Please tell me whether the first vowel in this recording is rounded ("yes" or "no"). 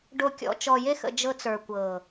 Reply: yes